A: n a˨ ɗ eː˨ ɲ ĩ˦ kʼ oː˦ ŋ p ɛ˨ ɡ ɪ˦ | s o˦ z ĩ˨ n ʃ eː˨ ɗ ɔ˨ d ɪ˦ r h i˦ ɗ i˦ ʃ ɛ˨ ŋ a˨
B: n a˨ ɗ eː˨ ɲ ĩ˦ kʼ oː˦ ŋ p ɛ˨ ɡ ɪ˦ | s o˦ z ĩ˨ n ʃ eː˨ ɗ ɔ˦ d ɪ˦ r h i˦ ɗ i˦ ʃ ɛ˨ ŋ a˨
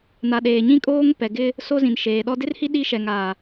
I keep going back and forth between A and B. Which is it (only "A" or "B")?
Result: B